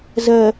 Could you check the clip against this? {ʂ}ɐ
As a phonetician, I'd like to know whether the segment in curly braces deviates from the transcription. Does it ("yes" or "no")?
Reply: yes